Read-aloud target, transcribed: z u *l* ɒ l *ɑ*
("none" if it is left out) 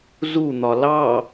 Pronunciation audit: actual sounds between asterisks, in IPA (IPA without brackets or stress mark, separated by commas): n̪, ɑ